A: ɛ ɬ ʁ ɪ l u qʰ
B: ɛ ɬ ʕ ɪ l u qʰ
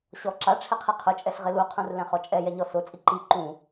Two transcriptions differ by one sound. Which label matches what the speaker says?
A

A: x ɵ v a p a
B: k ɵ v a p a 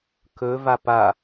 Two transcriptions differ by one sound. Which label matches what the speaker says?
B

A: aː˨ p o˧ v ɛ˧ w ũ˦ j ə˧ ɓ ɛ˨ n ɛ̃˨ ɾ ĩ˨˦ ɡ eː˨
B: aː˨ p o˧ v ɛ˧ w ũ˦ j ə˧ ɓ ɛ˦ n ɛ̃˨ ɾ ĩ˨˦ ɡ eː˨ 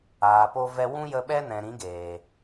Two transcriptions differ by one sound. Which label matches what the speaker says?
B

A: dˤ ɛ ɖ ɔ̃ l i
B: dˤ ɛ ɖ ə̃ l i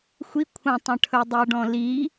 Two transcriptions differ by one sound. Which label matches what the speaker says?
A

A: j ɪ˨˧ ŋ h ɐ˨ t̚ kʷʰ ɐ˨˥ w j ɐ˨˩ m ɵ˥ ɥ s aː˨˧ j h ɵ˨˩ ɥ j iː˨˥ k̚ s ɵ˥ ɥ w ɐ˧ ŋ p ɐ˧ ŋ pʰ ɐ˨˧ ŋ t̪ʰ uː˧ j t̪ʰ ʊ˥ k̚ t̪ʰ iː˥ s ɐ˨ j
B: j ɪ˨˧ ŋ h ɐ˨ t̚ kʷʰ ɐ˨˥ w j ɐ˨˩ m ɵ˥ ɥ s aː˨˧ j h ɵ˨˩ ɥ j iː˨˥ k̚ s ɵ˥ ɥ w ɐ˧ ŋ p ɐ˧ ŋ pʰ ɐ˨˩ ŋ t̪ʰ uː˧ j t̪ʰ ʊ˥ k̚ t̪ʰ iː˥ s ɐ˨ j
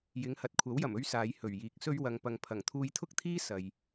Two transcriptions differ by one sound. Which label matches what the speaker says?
B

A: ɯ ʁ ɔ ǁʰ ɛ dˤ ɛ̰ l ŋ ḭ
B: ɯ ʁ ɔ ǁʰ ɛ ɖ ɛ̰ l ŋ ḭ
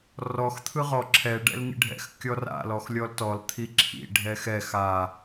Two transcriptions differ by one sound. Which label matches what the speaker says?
B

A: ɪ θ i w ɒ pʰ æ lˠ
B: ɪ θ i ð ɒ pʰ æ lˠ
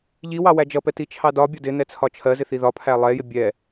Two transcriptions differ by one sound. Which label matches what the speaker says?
B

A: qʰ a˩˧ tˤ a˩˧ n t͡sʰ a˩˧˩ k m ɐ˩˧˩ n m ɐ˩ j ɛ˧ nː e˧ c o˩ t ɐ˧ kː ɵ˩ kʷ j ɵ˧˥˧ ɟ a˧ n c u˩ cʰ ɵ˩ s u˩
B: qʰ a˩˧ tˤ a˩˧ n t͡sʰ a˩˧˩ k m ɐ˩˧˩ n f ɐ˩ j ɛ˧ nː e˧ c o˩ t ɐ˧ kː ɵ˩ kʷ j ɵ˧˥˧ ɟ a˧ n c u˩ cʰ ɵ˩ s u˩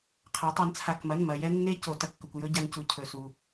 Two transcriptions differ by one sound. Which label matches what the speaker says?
A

